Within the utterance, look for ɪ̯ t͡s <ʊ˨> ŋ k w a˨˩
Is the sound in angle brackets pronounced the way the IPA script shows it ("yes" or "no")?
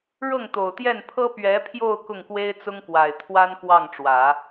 no